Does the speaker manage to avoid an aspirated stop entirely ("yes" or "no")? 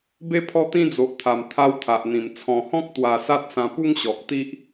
no